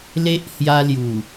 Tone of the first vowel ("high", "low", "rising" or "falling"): high